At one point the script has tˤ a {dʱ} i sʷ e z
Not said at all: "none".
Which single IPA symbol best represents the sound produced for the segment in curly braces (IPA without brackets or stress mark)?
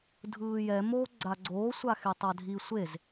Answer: dʱ